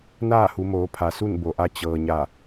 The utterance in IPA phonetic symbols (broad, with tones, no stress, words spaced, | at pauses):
naː˥˨hu˩˧moː˩˧pʰa˩ su˥˨nbo˩ʔa˧ t͡ɕɤː˩ɲa˧˩